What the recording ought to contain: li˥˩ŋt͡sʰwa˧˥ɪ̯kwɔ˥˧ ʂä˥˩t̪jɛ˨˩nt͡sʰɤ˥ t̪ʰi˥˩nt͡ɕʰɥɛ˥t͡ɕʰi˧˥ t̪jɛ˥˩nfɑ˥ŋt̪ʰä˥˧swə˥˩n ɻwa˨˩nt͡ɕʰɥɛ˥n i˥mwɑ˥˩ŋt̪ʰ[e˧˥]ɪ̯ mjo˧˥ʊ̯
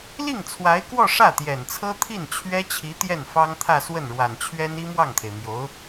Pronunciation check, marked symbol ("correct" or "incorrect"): incorrect